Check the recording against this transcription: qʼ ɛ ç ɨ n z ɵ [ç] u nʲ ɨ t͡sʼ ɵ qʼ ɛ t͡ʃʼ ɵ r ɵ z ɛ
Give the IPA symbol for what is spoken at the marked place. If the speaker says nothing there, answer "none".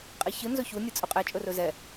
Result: ç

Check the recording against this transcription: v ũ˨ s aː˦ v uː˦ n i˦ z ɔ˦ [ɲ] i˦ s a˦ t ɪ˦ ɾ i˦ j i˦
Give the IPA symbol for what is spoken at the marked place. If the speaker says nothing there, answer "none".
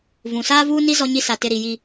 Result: ɲ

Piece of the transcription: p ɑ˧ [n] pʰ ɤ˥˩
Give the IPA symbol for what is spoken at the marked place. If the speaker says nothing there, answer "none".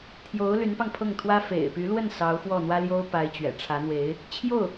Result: ŋ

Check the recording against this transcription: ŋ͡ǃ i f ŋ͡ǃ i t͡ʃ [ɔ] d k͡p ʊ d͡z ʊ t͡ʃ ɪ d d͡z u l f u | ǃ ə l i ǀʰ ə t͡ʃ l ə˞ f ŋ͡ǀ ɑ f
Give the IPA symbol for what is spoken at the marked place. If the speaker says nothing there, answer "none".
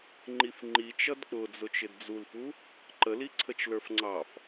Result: ʌ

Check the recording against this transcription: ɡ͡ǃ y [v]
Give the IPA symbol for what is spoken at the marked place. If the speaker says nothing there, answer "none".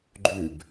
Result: b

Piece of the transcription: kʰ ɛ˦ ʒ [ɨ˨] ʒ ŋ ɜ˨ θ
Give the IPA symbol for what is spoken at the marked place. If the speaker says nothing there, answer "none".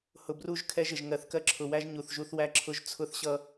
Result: ɪ˨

